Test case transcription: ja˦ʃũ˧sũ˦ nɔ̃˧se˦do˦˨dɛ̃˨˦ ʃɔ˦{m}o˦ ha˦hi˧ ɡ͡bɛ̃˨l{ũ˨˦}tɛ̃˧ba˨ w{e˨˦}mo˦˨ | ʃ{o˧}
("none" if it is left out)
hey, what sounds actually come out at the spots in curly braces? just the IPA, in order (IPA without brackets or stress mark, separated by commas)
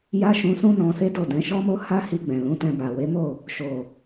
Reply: m, ũ˨˦, e˨˦, o˨